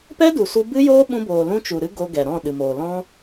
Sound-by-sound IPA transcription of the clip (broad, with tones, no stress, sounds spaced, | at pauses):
p ɛ˦ d u˨ s u˧ b ɨ˦ j oː˦ ɓ ũ˧ b oː˨ l ũ˧ t͡ʃ u˨ ɾ ɨ˦ ɡ o˧ ɡ ɛ˨ ɾ ɔ̃˦˨ ɗ ɨ˨ m oː˨ l ɔ̃˦